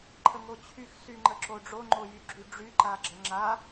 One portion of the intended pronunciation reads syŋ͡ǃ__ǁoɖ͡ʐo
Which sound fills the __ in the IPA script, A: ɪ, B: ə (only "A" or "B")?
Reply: B